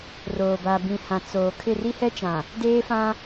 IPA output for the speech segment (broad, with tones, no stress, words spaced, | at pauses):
roː˨ba˨ bĩ˨hã˨ t͡soː˨kʰɪ˦˨ ri˦hɛ˦t͡ʃã˨ | deː˦fã˦